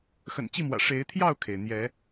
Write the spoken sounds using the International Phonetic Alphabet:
x ə̰˨˩ n t͡ɕ i˥˨ m w ä̰˨˩ ʂ e˨˦ ɪ̯ t̪ʰ j ɑ˥˨ ʊ̯ kʰ e˩ ɪ̯ n̪ j ɛ˨˦

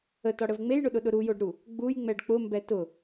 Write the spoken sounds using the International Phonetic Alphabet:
ə t ɒ ɽ ə v ŋ͡m e j ɳ ʊ ɗ ʊ ɗ ʊ ɾ u j o ɖ ɾ u | ɡ͡b u j ŋ͡m ɛ ɖ k͡p ʊ m b ɛ t ʊ

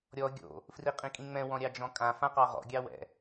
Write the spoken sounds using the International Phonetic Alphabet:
ɾʲ ɔ ɡʲ o̰ | f r i qʼ ĩ kʼ ĩ ŋ͡m ɛ̃ w ɔ̃ ɾʲ ɑ d͡ʒ ɔ̃ kʼ ã f ã q ɑ ʁ ɔ̰ ɡʲ ɑ w ɛ̰

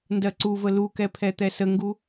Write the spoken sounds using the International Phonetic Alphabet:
n d ɜ ǀ u v ə l u k ɛ pʰ ɛ t̪ ɛ s ə ŋ ɡ u

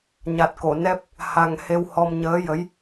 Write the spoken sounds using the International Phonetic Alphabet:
ɲ a˨˩ t̚ k o˨˩˨ n ɛ˦˥ p̚ | h a˧ ŋ h e˧ w h ɔ˧ m ɲ əː˧˥ j ə˧˥ j

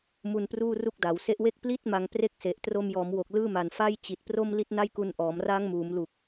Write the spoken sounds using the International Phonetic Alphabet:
m u˧ n p r uː˥˩ r u˥˩ k̚ d a˩˦ w s e˦˥ ʔ w e˥˩ k̚ p l i˥˩ t̚ m a˧ ŋ p r e˥˩ k̚ s e˨˩ ʔ t r o˧ m j ɔː˩˦ m w o˨˩ k̚ l ɯː˥˩ m a˨˩ n f a˥˩ j t͡ɕ i˨˩ t̚ p r o˥˩ m l i˦˥ t̚ n a˥˩ j k u˧ n ʔ ɔː˩˦ m r aː˦˥ ŋ m uː˩˦ m l u˨˩ k̚

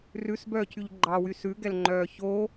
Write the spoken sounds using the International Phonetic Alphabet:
r ʉ s b œː cʰ y ʎ ɡ͡ǃ ɑ w y s ʉ ɡ ɛ l ŋ͡ǃ œː ç o

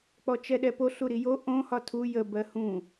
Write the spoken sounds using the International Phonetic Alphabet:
k͡p ɔ t͡ʃ ɛ ɗ ɛ p o ɬ u ɾ i j o ʔ õ h ɒ tʰ u j ə b ɜ h ũ

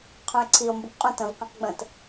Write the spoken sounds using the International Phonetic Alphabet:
qʰ ũ e̯ ǀʰ i o̯ m b u k qʼ ũ t ə̃ v q ĩ q ɡ͡b ə̃ t

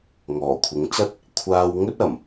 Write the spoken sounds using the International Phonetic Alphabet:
ŋ ɔː˨˩ kʷʰ ɪ˨˥ ŋ t͡s ɐ˥ t̚ | kʷʰ aː˧ w ŋ ɵ˥ t̚ ɐ˨˩ m

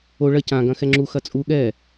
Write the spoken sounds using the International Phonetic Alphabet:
o ɭ ɐ c ã ɡ ɐ̃ x ɛ ŋ͡ǁ u x ɐ t͡sʼ u ɠ ɛ

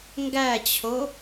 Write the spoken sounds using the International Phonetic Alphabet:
ŋ ɡ æ t͡ɕʰ o

